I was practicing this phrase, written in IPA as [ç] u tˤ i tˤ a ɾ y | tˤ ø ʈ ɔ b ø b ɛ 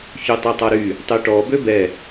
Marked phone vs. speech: correct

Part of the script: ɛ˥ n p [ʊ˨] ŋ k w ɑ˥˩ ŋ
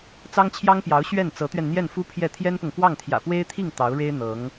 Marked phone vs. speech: correct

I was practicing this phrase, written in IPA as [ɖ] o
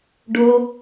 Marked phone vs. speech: correct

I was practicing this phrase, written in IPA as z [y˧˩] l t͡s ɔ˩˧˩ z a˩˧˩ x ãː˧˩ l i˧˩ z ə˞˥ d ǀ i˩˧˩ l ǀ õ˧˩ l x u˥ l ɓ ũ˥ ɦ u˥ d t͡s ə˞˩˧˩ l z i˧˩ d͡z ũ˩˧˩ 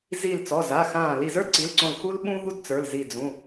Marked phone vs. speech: incorrect: i˧˩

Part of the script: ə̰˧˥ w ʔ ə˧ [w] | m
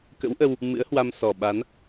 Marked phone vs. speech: correct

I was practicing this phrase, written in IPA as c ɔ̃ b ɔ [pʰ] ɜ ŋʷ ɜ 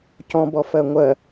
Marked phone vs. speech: incorrect: f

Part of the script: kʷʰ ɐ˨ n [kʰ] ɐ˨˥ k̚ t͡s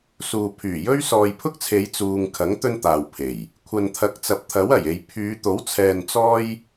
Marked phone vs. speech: incorrect: t̪ʰ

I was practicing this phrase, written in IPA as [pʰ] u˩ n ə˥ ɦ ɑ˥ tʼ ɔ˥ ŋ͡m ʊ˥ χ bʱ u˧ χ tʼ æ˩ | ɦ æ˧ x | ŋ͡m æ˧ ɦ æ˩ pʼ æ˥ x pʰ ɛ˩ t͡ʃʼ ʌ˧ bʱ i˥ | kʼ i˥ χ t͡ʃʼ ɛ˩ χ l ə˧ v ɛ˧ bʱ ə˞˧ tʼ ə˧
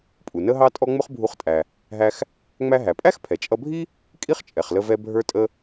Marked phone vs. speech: incorrect: pʼ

